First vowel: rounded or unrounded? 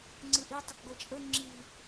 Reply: unrounded